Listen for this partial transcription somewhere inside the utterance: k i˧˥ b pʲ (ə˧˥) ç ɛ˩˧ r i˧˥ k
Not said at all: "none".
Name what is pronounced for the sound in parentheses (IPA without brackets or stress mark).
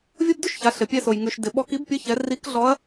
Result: ə˧˥